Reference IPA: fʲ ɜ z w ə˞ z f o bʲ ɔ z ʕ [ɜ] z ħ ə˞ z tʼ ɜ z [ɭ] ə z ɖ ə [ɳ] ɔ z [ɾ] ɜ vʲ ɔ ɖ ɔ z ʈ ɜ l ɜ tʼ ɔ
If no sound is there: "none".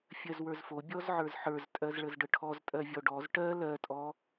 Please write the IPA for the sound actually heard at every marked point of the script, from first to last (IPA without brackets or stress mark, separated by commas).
ə˞, ɭ, ʈʰ, tʼ